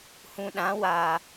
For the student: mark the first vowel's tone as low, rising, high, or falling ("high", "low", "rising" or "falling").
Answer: low